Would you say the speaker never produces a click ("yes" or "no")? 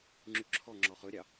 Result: no